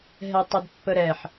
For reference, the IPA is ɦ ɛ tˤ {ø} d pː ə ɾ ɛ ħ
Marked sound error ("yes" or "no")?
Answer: yes